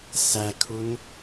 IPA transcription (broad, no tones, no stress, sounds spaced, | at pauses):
s æ kʰ u n